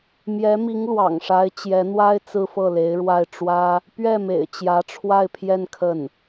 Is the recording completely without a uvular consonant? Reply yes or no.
yes